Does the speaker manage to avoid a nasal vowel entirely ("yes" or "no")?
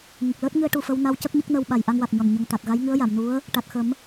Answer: yes